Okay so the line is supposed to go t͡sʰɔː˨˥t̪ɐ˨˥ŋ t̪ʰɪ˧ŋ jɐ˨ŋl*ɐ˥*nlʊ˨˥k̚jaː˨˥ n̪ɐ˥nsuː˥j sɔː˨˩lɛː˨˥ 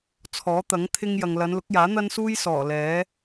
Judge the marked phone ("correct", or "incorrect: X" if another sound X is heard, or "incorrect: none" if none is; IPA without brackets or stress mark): incorrect: ɐ˨˧